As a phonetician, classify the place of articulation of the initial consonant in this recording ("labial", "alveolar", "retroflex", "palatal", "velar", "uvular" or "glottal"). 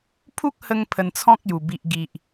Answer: labial